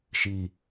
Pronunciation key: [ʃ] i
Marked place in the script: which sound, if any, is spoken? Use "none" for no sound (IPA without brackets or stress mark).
ʃ